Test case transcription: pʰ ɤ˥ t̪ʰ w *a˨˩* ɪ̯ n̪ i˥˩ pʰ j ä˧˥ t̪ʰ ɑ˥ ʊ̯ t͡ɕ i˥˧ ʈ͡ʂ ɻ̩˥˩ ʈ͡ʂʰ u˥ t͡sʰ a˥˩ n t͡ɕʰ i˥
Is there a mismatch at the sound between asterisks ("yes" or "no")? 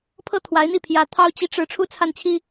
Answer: yes